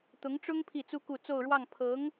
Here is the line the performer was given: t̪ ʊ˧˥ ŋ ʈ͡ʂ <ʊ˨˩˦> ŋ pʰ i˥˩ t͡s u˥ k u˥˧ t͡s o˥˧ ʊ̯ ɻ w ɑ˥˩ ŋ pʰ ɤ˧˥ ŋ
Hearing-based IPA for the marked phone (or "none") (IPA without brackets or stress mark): ʊ˥